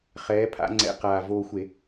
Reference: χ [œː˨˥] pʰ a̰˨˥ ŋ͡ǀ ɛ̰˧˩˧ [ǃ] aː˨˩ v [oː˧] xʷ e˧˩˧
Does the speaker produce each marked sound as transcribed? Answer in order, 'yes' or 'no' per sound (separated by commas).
no, no, yes